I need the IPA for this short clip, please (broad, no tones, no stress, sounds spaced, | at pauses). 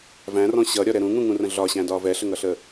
v æ̃ r ɔ̃ ɕ ʌ ɾʲ ɒ ɾ ɛ ɾ ũ ŋ ũ ŋ ũ r ə̃ ɮ ɒ ɕ æ̃ d ɒː v ɛ ɬ ə ŋ ʌ ɬ ə